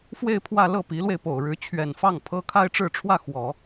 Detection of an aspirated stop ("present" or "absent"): present